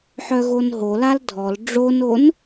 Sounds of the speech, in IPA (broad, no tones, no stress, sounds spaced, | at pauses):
ħ œ ɣ o n ɦ o l a l dʱ ɔ l ɖ͡ʐ o n o n